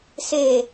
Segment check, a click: absent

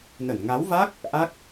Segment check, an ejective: absent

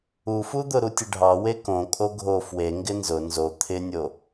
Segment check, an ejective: present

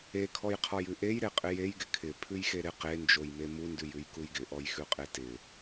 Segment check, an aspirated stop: present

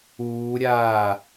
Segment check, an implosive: absent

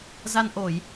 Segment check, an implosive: absent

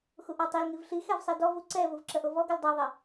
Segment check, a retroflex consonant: absent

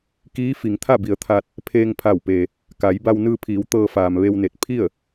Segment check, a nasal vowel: absent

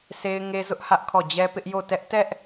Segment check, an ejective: absent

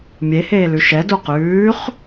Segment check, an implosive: absent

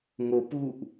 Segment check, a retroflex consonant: absent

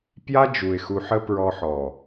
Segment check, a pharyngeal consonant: present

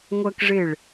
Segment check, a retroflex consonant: present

